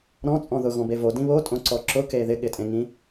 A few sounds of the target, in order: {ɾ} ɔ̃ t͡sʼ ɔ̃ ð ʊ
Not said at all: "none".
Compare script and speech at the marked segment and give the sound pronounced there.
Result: ɾ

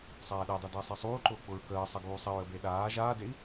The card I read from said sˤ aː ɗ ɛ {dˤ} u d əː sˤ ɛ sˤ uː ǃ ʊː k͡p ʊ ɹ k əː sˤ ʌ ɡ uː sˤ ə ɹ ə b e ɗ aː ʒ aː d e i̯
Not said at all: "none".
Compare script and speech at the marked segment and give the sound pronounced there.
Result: dˤ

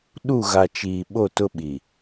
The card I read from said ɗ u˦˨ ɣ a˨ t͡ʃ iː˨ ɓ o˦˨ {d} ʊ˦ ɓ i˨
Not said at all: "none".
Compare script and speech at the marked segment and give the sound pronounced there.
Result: t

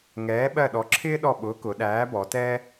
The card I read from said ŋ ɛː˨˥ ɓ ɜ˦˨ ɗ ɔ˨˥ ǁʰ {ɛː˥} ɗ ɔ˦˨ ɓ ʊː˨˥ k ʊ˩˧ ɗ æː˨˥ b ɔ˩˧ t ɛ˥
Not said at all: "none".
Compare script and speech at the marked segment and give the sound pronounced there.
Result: ɪː˥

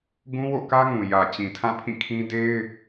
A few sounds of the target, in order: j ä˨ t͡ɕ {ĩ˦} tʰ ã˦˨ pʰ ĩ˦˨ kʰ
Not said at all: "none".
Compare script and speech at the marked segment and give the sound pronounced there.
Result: ĩ˨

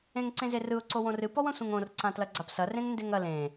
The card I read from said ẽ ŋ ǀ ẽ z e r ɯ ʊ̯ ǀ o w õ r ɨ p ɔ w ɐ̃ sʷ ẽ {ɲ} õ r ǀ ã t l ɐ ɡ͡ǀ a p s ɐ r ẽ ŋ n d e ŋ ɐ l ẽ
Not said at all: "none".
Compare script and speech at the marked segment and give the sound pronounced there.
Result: ŋ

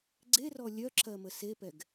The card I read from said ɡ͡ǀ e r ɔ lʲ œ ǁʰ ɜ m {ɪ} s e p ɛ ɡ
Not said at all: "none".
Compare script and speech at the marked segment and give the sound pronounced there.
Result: ə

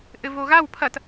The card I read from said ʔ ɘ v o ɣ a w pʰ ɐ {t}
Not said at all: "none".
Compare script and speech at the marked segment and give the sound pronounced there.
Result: t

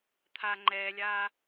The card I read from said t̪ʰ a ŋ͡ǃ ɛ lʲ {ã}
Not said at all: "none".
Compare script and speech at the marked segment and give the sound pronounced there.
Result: a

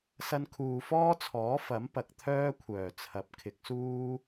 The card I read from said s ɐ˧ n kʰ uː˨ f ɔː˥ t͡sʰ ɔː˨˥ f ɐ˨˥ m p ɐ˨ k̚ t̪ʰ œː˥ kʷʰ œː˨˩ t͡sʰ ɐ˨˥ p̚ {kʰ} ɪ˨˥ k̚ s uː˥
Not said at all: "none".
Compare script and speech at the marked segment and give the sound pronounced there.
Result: kʰ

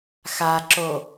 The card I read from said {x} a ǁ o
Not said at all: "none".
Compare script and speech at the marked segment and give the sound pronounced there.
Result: x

